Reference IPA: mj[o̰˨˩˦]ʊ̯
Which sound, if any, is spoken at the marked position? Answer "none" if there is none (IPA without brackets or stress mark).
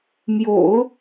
o̰˨˩˦